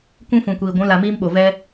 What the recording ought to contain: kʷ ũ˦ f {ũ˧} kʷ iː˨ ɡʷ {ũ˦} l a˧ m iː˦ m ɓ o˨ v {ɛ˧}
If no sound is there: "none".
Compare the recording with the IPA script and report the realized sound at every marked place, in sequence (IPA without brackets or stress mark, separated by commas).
ũ˨, ũ˨˦, ɛ˧